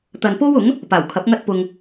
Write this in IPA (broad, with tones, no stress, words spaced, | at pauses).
t̪ɐ˨npo˥wʊ˨˥ŋ | paː˨˩wkʰɐ˨˥p̚ ŋɐ˥t̚pʊ˧ŋ